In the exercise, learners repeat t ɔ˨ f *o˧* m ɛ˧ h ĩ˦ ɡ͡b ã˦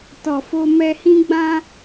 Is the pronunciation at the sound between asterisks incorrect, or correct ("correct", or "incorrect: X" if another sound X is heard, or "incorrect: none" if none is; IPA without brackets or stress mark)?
correct